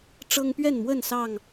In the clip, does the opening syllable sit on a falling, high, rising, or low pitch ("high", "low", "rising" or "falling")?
high